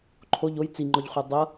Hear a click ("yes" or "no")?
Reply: yes